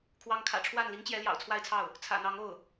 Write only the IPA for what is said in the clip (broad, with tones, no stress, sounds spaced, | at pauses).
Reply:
kʰ w ɑ˧˥ ŋ kʰ ä̰˨˩ ʈ͡ʂʰ w a˥˩ n l i˧˥ ŋ t͡ɕ j ɛ˧˥ l j ɑ̰˨˩ ʊ̯ t͡sʰ w a˥˧ ɪ̯ t͡sʰ ɑ˥˩ ʊ̯ | t͡sʰ ä̰˨˩ n̪ ɑ˧˥ ŋ o˥˩ ʊ̯